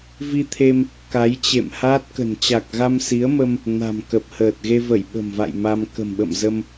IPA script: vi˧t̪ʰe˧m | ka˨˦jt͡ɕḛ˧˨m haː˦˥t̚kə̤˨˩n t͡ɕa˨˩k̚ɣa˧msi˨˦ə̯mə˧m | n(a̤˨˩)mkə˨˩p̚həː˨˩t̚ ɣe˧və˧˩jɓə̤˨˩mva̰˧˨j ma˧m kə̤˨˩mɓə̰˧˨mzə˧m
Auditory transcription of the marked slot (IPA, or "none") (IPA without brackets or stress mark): a̤˨˩